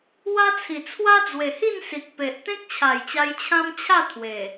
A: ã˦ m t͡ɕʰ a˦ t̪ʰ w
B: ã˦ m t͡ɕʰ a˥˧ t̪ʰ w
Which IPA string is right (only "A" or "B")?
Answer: B